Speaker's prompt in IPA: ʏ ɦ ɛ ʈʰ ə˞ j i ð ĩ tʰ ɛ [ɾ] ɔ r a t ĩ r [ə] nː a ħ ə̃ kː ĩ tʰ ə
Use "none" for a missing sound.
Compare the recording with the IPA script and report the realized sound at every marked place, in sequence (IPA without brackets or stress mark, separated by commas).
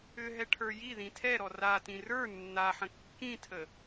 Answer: ɾ, ə˞